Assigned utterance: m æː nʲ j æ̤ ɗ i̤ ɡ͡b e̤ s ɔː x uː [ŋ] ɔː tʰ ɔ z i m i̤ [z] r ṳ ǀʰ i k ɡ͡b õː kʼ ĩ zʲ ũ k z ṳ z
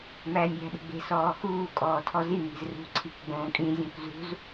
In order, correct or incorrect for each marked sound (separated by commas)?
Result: incorrect, correct